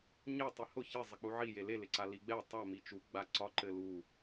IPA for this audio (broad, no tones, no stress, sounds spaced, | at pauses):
ɲ e tˤ i h ʊ ç ɪ zˤ ɘ k͡p u ʕ i j e l e l ɪ ǀ a l i ɡ͡b ɛ tˤ a m i t͡ʃ u ɡ͡b a ǀ ɒ ǃ ɘ l u